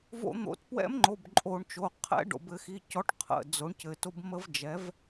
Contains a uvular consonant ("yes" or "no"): yes